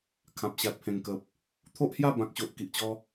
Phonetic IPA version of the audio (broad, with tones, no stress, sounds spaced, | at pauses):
kʰ ã˨ p̚ ɕ a˨ t̚ pʰ ẽ˨˩ ŋ k ə˨ p̚ | t̪ʰ o˦ ʔ h j a˥˧ b ã˨ k̚ ɕ o˨ ʔ k i˨ ʔ t͡ɕ ɔ˧